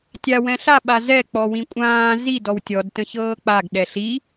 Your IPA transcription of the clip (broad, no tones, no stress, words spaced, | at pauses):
tʲa wɛ̃ɬa ɓazɛ k͡pɔwĩkʷʼãː zi dɔwtʲɔd tə̃çɤːk͡paɡ ɗɛɬi